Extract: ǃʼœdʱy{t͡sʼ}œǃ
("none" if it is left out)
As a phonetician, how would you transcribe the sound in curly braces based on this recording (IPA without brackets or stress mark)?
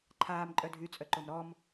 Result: t͡sʼ